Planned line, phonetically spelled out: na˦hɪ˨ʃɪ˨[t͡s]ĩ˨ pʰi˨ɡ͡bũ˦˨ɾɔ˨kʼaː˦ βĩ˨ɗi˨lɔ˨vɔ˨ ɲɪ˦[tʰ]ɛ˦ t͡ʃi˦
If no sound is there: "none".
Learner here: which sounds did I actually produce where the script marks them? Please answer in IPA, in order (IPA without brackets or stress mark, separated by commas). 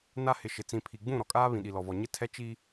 t͡s, tʰ